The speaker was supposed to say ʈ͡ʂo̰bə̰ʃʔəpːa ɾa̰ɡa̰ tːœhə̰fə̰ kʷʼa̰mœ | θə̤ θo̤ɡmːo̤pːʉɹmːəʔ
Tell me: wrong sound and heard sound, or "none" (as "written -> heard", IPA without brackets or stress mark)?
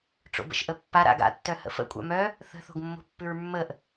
none